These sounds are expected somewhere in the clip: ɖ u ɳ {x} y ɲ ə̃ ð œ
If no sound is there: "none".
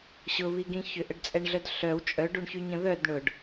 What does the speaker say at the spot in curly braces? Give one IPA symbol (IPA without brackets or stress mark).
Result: ç